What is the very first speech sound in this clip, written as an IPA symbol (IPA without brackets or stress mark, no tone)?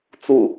t͡s